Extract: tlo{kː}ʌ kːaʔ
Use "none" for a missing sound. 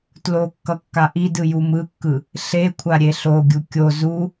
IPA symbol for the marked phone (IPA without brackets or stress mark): kː